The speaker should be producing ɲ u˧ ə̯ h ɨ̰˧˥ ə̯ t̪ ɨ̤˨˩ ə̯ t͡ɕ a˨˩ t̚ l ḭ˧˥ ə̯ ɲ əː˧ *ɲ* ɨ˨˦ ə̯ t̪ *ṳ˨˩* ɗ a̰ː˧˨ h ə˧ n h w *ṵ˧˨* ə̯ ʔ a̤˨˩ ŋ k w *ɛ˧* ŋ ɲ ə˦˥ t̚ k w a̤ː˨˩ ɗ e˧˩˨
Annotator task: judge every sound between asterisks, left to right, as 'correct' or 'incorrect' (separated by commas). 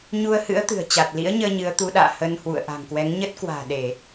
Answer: correct, incorrect, correct, incorrect